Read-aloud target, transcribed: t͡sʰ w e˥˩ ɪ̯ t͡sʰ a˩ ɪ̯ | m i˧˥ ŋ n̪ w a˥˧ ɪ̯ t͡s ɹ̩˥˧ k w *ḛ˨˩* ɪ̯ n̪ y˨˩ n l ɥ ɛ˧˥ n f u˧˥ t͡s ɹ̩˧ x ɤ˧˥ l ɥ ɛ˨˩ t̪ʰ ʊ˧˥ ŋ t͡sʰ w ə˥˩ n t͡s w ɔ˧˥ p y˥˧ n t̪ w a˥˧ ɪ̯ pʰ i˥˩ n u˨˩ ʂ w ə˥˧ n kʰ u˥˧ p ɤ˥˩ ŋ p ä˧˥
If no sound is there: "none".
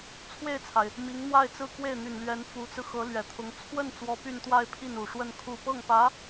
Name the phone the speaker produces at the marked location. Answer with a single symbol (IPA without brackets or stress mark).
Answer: e˥˩